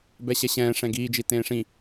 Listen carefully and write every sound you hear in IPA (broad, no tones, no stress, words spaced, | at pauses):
bɛɕɛɕɛ̃ː ʂɛ̃ɡiːd͡ʒi tẽːʂĩ